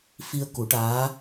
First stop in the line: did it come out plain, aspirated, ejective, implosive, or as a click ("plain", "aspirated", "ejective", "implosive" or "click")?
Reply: plain